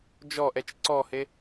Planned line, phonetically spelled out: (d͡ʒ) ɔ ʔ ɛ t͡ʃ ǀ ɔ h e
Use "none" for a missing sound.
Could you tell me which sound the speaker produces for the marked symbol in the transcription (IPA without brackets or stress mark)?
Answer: d͡ʒ